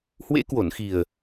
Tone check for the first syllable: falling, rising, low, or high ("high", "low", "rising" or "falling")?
rising